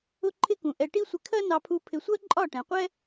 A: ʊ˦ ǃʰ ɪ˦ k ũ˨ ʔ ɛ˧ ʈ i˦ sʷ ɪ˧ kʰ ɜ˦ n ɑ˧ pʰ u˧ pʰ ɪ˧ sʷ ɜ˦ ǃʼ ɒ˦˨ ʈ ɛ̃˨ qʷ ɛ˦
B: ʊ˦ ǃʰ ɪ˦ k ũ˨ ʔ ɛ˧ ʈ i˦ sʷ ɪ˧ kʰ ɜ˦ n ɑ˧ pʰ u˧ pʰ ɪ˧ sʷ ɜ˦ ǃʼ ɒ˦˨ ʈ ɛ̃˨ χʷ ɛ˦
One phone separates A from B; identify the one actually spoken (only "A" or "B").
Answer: A